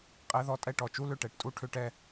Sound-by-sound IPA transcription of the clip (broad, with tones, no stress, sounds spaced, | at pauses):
qʼ ɛ˦˥ ð ɔ˥˨ tʼ ɛ˥˨ ʈ ɔ˧˩ t͡ʃ u˦˥ l ʏ˥˨ ʈ ɛ˧˩ ʈ tʼ u˥˨ ʈʰ ʏ˥˨ ʈ ɛ˥˨